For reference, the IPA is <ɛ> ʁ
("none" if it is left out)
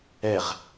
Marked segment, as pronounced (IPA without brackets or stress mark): ɛ